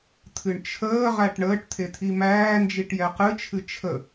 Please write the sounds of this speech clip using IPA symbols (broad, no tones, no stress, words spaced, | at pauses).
t̪ʰɨɳt͡ʃʰəːʁæʈ ɳəːʈ t̪ʰet̪ʰimæːnd͡ʒiʈ jɛqɨt͡ʃʰɨ t͡ʃʰə